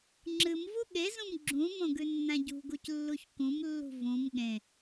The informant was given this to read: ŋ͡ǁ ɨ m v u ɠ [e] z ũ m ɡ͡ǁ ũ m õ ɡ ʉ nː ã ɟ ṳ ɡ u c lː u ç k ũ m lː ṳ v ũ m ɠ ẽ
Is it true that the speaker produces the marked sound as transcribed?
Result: yes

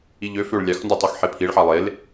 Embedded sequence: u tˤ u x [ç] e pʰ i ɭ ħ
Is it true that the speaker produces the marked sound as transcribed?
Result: no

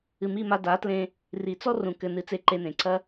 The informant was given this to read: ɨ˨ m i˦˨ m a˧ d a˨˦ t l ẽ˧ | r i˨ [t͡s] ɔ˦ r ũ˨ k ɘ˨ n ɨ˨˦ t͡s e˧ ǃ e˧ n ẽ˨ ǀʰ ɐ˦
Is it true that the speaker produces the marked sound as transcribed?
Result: yes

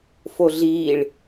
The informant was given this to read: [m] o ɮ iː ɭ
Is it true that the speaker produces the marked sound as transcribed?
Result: no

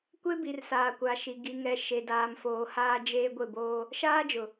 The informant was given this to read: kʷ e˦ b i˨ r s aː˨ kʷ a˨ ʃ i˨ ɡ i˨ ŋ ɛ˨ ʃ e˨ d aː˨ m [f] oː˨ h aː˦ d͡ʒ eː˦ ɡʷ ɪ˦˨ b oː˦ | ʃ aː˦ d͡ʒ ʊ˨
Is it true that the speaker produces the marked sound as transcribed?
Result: yes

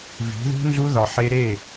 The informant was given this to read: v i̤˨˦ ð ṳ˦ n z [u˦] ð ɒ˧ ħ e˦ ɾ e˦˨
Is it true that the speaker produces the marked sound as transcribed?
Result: yes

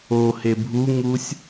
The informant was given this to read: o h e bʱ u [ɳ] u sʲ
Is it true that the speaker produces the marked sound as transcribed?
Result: no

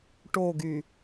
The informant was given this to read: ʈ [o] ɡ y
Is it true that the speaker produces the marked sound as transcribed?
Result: yes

